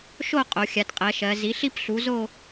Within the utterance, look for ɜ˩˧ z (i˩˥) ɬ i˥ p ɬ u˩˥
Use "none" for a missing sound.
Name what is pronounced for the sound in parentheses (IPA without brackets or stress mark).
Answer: i˩˥